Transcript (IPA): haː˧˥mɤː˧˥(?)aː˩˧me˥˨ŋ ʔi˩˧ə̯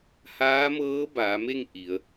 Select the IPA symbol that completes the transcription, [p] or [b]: b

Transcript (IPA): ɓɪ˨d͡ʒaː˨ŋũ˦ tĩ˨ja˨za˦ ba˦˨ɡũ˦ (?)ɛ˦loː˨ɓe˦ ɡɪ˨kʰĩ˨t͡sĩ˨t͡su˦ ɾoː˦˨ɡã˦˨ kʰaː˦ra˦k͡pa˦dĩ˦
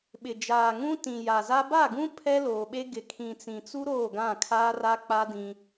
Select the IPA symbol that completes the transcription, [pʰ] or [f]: pʰ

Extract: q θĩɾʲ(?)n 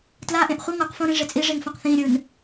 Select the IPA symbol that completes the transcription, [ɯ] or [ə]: ɯ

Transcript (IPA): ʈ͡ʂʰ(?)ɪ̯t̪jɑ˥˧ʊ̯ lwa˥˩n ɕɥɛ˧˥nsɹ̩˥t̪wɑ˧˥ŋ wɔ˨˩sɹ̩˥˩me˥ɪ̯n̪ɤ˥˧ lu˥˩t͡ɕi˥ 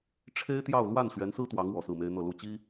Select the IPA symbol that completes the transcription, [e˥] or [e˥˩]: e˥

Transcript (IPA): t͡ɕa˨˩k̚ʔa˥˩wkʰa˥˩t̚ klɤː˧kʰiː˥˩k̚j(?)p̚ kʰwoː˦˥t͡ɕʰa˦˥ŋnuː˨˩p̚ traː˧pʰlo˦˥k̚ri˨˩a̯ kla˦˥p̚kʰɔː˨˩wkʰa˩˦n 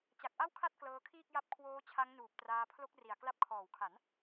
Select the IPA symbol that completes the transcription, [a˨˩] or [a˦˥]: a˦˥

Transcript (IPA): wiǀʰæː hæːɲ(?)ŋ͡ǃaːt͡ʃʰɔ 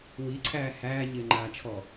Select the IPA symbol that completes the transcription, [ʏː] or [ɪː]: ɪː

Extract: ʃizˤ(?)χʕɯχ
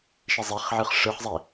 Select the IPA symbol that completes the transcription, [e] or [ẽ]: e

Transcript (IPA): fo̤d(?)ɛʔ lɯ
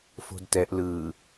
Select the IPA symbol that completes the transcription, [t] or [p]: t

